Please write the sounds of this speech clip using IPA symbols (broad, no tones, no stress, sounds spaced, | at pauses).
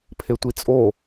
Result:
pʰ e tʷ i t͡sʼ o